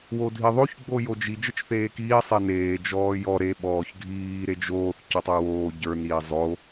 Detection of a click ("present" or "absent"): absent